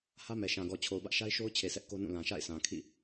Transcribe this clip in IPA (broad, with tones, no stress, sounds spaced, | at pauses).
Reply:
h ä˦ m ɛ˨ ʃ ã˨ ɡ ɔ˨ t͡ɕʰ o˨ ʊ̯ b ä˦ ʔ ʃ a˦ ɪ̯ ʃ o˦ ʊ̯ t͡ɕʰ e˨ s ɛ˦ ʔ k o˦ n ũ˦˨ l ã˨ ʃ a̰˦˨ ɪ̯ s ã˨ kʰ ḭ˦˨